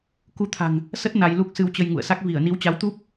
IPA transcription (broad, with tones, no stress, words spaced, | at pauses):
ku˧t̪ʰa̤˨˩ŋ | sə˦˥t̚ na˧jlu˦˥k̚ sɨ˧wt͡ɕə˧j ŋṵ˧˨ə̯sa˦˥k̚ vi˧˩ə̯ni˨˦wt͡ɕa˨˦wt̪u˦˥p̚